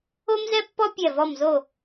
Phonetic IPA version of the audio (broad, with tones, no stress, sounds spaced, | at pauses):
o˥ m z ɛ˥ pː ɔ˥ pʲ ɛ˥˧ v ɔ˥˧ m z o˥˧